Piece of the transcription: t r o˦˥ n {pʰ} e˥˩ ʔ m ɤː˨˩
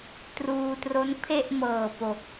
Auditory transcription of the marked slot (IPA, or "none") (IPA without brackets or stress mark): pʰ